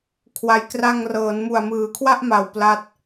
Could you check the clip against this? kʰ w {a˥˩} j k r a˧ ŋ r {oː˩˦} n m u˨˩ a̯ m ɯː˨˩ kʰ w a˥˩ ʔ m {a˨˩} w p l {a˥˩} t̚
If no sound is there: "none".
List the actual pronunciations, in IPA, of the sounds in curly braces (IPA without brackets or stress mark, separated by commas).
a˨˩, ɤː˩˦, a˨˩, a˦˥